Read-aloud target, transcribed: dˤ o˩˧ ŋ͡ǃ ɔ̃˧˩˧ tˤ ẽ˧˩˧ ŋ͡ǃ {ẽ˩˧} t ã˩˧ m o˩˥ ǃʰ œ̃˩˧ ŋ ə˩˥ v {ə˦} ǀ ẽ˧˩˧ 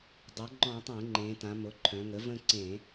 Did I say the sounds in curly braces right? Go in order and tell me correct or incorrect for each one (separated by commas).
correct, incorrect